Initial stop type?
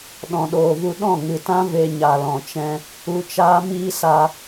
implosive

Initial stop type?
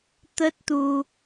plain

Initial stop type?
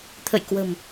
aspirated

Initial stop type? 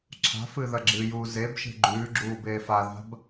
click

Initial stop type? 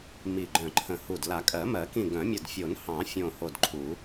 click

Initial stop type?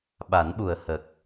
implosive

